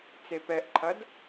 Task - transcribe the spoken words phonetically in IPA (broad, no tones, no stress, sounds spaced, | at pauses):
t͡s e p ɛ ʔ ǃʰ ɐ d